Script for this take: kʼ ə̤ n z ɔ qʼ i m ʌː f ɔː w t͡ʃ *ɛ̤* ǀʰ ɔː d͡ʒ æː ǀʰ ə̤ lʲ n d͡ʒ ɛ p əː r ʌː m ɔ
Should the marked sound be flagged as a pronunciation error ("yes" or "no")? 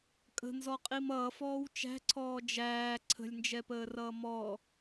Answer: yes